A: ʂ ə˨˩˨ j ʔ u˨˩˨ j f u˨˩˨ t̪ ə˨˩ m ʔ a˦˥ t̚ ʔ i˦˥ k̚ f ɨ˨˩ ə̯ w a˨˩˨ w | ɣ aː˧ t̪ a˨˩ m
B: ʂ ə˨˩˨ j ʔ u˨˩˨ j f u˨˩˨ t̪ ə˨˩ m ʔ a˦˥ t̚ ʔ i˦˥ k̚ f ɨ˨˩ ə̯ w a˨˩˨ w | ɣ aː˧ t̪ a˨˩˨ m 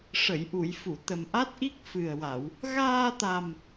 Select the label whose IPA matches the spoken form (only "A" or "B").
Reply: A